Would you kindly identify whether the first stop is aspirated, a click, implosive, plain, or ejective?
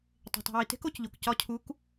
plain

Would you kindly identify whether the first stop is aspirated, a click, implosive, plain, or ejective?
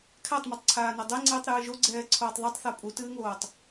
aspirated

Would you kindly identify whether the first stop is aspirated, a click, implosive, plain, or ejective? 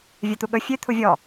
plain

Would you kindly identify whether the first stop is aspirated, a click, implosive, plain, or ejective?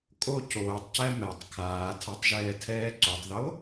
ejective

